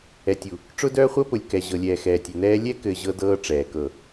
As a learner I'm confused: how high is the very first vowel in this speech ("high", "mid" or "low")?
mid